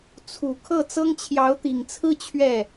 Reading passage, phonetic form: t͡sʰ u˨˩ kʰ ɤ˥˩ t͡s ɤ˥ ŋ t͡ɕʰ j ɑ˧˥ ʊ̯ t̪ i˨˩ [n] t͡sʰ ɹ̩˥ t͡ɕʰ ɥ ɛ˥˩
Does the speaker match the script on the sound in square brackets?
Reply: no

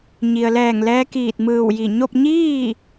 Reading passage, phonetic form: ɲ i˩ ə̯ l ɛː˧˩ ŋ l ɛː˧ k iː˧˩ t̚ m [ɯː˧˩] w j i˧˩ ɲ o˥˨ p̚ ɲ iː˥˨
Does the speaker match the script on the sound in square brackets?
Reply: yes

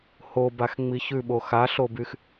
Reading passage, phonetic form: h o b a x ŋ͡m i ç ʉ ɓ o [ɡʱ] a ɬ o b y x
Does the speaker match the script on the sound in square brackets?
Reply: no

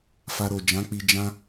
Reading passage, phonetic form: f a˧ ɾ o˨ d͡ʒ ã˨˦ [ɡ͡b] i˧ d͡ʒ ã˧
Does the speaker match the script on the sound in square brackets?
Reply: no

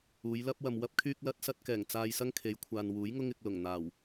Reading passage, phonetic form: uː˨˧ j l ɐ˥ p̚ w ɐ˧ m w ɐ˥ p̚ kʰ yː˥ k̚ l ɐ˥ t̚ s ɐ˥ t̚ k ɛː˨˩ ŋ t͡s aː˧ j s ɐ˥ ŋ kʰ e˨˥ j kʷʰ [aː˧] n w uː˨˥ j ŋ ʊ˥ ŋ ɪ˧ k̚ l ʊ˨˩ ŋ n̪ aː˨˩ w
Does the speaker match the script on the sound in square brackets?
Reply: no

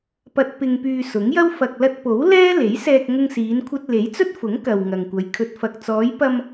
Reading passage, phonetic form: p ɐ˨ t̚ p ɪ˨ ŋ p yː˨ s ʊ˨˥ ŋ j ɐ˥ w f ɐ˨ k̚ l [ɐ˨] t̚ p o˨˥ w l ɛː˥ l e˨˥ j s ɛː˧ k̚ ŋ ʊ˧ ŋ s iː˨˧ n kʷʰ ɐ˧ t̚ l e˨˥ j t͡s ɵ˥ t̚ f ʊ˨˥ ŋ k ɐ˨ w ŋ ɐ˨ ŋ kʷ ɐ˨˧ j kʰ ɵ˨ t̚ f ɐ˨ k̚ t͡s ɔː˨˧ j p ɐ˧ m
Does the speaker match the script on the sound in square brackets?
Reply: no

